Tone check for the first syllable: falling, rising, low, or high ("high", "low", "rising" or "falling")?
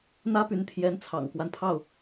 high